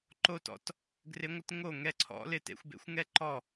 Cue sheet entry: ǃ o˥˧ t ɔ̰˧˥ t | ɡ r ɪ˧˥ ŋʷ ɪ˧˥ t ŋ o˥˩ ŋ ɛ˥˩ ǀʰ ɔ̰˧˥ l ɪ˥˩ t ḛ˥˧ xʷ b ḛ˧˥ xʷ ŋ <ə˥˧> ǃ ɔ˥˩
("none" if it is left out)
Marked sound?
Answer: ɛ˥˧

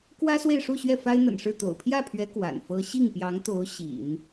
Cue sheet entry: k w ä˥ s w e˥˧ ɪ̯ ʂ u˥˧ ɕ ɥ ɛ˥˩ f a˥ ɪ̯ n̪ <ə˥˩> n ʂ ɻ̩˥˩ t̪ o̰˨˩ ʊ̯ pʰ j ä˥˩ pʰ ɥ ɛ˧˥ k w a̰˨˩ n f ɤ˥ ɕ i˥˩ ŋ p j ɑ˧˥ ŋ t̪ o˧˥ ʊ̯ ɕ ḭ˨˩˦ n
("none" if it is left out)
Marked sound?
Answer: ə̰˨˩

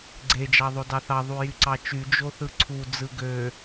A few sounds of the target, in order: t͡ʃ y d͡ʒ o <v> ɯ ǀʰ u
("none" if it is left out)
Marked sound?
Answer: θ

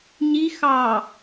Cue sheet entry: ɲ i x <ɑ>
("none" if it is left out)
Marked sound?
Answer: ɑ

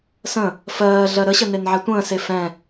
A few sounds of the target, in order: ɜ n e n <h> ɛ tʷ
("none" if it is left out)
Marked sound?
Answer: ʕ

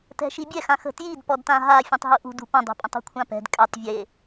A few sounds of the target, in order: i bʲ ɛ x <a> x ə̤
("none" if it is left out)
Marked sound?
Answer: ã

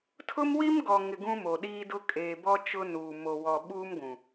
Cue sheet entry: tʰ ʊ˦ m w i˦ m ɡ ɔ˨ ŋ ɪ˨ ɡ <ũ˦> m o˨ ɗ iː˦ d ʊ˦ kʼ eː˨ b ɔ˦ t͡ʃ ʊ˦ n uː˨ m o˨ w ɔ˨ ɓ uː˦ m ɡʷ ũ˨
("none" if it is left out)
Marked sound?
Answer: ũ˦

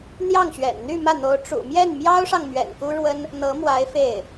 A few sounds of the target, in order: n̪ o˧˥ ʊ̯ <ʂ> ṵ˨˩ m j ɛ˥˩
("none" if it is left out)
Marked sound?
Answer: ʈ͡ʂ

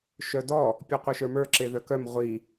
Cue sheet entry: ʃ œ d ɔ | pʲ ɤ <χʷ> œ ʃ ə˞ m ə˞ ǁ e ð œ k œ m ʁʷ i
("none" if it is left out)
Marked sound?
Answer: qʷ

